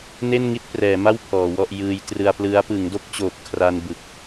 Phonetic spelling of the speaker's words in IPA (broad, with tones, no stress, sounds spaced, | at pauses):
n e˥˩ n ŋ i˥˩ t̚ p r ɛː˩˦ m a˥˩ w pʰ ɔː˩˦ w ɔ˥˩ ʔ j ɯː˧ j t r ɯ˧ a̯ p l ɯ˦˥ a̯ p ɯ˩˦ ŋ d o˥˩ k̚ t͡ɕ oː˨˩ p̚ kʰ r a˧ n b ɯ˨˩ k̚